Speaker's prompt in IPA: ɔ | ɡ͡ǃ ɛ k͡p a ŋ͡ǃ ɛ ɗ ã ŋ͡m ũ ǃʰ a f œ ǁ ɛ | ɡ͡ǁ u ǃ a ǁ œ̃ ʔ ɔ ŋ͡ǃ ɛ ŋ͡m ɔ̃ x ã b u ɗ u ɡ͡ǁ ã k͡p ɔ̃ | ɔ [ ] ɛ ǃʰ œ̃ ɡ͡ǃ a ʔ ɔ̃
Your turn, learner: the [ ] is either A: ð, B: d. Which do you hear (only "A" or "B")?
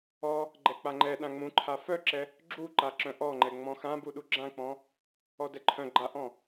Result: B